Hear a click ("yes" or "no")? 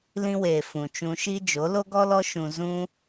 no